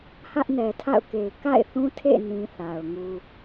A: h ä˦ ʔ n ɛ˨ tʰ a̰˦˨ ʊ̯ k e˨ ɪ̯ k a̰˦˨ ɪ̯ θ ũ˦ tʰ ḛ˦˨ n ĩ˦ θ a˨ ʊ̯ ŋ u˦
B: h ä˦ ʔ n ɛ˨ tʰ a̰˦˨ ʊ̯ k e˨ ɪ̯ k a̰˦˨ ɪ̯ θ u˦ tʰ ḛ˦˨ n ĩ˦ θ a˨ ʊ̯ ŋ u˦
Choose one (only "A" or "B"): A